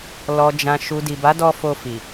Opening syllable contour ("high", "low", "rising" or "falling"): low